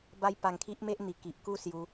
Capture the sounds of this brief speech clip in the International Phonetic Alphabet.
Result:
b a˦ j p a˧ ŋ kʰ i˦ ʔ m e˦ ʔ n̪ i˨˩ k i˨ ʔ k u˥˧ s j u˧

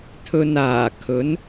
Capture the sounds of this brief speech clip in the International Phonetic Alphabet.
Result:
t̪ʰ ɵ˧ n aː˨˩ kʰ ɵ˨˥ n

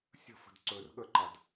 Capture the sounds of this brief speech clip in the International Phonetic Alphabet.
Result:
sʲ ə̤ f ə̤ d ǀ ɵ r ɠ ə ǃ a d

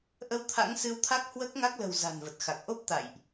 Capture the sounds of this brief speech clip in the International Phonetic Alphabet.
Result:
ʔ ə˧ w t̪ʰ a̰˧˥ ŋ s ɨ˧ w t̪ʰ a˦˥ k̚ h w əː˦˥ k̚ ŋ a˦˥ k̚ l ə̤˨˩ w z a̤˨˩ n v ə˨˩ t̚ x a˨˩ k̚ ʔ o˦˥ p̚ t̪ a̰˧˨ j ʔ

